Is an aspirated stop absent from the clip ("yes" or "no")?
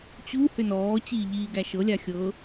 yes